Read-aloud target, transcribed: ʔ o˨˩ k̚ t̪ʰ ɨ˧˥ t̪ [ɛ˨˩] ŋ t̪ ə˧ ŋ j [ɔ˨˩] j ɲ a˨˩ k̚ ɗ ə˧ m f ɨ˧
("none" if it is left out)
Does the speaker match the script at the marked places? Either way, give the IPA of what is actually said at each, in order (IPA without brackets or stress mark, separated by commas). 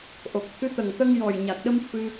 ə˨˩, ɔ˨˩